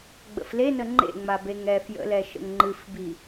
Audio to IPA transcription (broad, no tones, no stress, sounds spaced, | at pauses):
ɡ͡b ə̰ f l e n ə ŋ͡ǃ ḛ ŋ͡m a b e ŋ ɛ f j ə̰ l ɛ ʃ ə̰ ŋ ŋ͡ǃ ɨ f b i